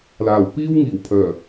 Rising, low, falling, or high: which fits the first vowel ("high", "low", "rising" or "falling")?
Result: low